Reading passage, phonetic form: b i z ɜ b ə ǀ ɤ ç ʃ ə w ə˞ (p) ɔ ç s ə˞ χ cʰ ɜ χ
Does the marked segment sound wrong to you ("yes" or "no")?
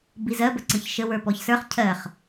no